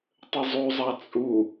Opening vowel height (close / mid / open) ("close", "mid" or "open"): mid